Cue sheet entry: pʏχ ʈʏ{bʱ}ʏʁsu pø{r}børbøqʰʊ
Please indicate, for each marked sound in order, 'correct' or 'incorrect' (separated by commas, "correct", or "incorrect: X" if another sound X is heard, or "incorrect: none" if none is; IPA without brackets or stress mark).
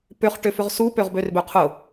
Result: incorrect: f, incorrect: ʁ